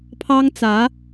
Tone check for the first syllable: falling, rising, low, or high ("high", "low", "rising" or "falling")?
high